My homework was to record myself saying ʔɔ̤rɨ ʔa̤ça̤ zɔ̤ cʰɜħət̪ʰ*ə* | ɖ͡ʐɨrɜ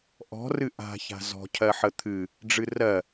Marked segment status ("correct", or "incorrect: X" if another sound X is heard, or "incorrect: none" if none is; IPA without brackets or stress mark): incorrect: ɨ